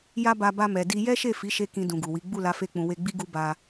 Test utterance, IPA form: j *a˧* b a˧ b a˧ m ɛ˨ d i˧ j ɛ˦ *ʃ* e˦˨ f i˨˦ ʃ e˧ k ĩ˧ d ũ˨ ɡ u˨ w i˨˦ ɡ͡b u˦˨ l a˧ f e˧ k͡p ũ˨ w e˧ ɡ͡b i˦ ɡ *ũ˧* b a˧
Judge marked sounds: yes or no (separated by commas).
yes, yes, no